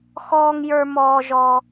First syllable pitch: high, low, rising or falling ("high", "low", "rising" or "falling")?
high